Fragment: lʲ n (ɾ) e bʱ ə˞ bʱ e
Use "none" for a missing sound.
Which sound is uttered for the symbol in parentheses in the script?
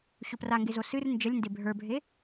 d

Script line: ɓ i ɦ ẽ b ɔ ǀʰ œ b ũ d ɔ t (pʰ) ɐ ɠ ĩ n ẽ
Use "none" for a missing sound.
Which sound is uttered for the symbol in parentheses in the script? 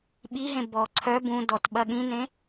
ɓ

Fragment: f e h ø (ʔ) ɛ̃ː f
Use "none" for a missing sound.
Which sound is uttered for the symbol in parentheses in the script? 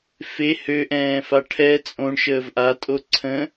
ʔ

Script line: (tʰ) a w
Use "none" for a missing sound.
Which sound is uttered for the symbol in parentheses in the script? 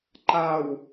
ǃ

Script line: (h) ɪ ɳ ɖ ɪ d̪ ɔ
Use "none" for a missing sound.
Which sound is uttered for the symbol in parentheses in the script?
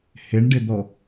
h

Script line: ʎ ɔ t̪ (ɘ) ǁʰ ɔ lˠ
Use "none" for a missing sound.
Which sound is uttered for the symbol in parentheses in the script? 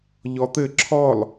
ɘ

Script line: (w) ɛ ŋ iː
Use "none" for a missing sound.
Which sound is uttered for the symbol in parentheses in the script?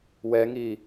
w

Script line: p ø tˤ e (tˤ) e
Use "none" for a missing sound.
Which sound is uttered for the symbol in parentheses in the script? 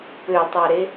ɾ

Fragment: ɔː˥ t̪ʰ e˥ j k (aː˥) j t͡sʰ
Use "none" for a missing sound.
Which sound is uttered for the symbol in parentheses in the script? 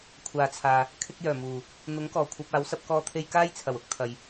aː˥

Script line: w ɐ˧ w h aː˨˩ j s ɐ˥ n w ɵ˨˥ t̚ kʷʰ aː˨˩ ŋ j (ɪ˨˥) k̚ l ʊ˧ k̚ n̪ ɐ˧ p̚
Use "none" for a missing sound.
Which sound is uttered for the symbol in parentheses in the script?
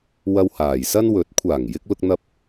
ɪ˧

